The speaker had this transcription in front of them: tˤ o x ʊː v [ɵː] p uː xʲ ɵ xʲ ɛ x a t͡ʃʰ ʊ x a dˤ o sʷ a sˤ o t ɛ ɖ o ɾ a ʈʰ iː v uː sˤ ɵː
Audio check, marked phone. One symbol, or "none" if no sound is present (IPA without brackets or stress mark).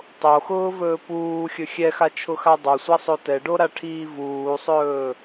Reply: ɵː